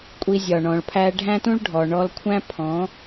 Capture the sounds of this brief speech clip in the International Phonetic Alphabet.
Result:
kʷʼ i˧ zʲ ɒ˨ ɳ ɔ̃˨ ɭ pʰ æ˧ ɖʱ æ̃˦ t ũ˦ ɭ ɖʱ ɔ˨ ɳ ɔ˧ l kʷʰ æ̃˦ pʰ ɔ̃˨˦

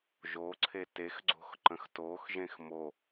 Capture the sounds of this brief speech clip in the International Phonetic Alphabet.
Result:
ʒ o ǀʰ e t e x ɡ͡ǀ o̤ x ǃ ə̃ x t o x ʒ ẽ x m o

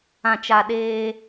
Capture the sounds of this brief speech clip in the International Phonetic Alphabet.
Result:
ã˨ t͡ʃ a˨ ɗ eː˦

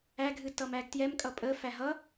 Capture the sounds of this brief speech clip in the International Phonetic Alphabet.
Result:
æ ɡʱ ɨ t ʌ m æ ɡ t j ɛ m kʼ ʌ pʼ ə f æ ɦ ʌ

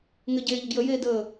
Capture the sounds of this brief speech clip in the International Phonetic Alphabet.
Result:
ŋ ɘ ɟ eː ʎ ə ɡ j ə j eː d əː

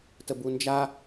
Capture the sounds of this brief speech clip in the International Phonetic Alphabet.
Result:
t ə b u n d͡ʒ a

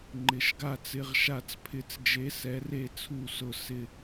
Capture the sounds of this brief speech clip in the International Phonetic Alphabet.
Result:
ŋ͡ǃ ɪ˧˥ ʃ ɡ a˥˧ t͡s ɪ˥˧ ʁ ʃ a˥˧ t͡s pʰ ɪ˧˥ t͡s d͡ʒ e˧˥ s ɛ˧˥ r e˥˧ t͡sʰ u˥˧ s ʊ˥˧ s ɪ˥˧

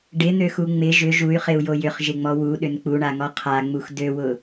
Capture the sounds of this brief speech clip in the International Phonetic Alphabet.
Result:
ɖ ɪ n̪ ø x u ŋ͡m ɪ ʒ ʏ ʒ u y̯ χ ɪ u̯ j o j ʏ χ ʒ ɪ ŋ͡m ɔ w u ɗ ʏ n k͡p u ɳ a ŋ ɔ qʰ a ŋ͡m u x d ø w ʊ

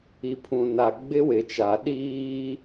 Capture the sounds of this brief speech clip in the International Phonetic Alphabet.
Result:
i˨ pʰ ũ˨ n a˨ ɡ͡b ɪ˦ w ɪ˨ t͡ʃ a˨ ɗ iː˦

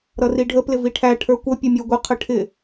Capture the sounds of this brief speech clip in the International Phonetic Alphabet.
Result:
ɾ ʌ r i ɖʱ ə p l ɪ v i ʈʰ æ ʈʰ ə˞ kʷ ʌ pʲ ʊ mʲ ə˞ ɡʷ ə qʰ ə ʈʰ ɪ

